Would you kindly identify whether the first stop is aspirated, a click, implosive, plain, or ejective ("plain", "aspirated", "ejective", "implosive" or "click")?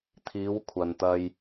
aspirated